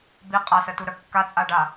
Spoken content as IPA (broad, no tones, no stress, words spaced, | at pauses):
bi qʼasətuɾœ kːat͡sʼaɖa